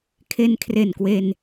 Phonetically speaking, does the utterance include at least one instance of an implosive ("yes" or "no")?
no